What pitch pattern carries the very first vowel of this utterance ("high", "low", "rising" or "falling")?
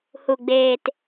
low